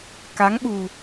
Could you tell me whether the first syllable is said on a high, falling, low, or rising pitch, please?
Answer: rising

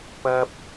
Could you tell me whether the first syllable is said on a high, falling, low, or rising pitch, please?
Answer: high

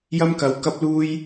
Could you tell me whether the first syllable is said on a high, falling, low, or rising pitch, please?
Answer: high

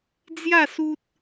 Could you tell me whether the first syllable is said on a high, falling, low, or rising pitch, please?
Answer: falling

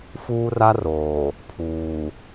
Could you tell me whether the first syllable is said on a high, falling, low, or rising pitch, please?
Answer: high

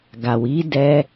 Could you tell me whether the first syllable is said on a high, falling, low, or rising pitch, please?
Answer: low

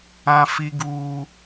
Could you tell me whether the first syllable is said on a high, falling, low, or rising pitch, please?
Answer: high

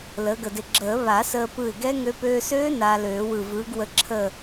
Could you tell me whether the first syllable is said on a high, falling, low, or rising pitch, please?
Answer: rising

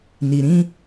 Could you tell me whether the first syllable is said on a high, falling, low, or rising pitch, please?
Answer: low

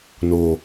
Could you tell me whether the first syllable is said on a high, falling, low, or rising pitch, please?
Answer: low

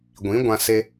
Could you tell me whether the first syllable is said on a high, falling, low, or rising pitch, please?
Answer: rising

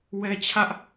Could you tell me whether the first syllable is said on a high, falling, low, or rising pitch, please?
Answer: high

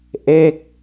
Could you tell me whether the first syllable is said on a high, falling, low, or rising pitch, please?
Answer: falling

